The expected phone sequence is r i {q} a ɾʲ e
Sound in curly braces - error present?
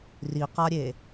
no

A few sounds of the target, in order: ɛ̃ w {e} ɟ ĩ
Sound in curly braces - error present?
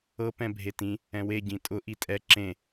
no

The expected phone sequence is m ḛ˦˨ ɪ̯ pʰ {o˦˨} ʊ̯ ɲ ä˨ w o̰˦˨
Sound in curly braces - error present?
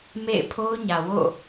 yes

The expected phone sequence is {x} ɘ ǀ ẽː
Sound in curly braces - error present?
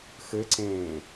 no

